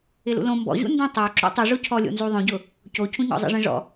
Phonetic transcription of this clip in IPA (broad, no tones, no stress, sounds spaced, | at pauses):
ɪ l ṵ l õ m b ɔ̰ ʑ ṵ n d ẽ tˤ o ǁ ṵ tˤ u ʐ o cʰ ɔ lʲ o̰ n z u ðˤ õ ɟ ʊ | c o cʰ ũ ɲ ɔ̰ zˤ ḛ ʐ ẽ ʐ ɔ̰